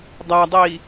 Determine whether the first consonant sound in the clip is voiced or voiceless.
voiced